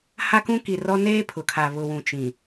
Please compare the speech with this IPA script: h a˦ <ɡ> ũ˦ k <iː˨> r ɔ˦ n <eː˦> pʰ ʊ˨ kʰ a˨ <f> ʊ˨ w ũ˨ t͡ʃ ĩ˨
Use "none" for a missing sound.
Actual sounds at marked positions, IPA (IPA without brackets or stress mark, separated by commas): k, i˨, eː˦, β